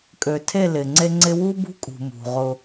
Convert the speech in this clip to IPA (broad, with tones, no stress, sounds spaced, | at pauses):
kʼ ø˨ tʰ e˦˨ l ɪ˨ ŋ͡ǀ e˦ ŋ͡ǀ ɪ˦ w u˦ b ṳ˦ kʼ ṳ˨ m ṳ˨ ʁ ʊ˦